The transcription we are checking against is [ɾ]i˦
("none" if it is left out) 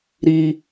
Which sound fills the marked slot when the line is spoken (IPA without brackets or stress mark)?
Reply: ɾ